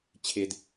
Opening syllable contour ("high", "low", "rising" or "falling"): low